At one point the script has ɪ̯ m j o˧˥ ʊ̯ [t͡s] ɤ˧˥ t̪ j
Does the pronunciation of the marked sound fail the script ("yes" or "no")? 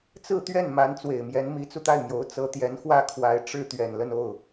no